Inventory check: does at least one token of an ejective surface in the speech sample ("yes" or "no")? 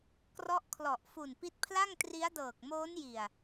no